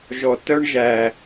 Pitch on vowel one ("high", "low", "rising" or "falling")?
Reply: low